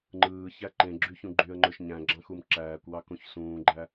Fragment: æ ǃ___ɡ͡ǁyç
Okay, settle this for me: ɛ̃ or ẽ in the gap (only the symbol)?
ẽ